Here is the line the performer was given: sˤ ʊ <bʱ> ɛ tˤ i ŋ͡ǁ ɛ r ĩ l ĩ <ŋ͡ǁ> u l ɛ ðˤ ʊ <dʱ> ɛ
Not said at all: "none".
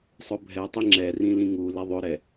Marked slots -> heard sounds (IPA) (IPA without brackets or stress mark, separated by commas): bʱ, ŋ, ɾ